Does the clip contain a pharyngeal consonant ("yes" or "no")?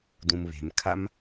no